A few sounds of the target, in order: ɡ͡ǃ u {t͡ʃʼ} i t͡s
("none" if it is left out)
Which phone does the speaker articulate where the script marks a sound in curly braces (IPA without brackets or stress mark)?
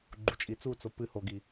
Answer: t͡ʃʼ